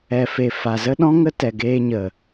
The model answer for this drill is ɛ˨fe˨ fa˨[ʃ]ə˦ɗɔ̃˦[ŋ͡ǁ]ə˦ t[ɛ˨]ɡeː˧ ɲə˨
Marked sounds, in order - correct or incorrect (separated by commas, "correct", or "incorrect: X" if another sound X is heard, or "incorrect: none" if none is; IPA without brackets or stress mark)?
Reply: incorrect: z, incorrect: ŋ, correct